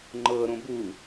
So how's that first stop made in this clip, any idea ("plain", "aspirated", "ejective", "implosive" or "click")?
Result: click